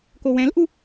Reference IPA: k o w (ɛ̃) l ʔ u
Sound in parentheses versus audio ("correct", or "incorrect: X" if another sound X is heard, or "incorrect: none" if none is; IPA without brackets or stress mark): correct